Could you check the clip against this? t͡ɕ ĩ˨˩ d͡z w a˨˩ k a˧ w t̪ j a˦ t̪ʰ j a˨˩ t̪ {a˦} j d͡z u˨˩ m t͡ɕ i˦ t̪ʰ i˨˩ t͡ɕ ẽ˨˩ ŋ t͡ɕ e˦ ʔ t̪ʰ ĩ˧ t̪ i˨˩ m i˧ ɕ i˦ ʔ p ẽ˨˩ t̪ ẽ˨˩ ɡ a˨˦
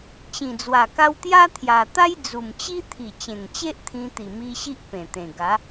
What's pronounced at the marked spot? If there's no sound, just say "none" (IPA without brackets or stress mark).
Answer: a˦